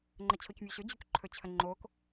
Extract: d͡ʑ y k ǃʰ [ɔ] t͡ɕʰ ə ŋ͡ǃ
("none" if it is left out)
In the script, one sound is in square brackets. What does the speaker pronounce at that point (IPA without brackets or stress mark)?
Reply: ɵ